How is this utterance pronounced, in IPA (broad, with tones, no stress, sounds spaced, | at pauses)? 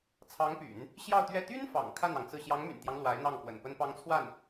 t͡sʰ ɑ˧˥ ŋ p y̰˨˩˦ n | ɕ j ɑ˥˧ ʊ̯ t̪ ɥ ɛ˥˩ t̪ y˥ n f ɑ̰˨˩ ŋ kʰ a˥˩ n ɑ˩ ŋ t͡s ɹ̩˥˩ ɕ j ɑ˧˥ ŋ m y̰˨˩ n t̪ j ɑ˦ ŋ l w a˧˥ ɪ̯ n̪ ɑ˥˩ ŋ k w ə̰˨˩ n p ə˥ n p ɑ˥ ŋ t͡sʰ w a˥˩ n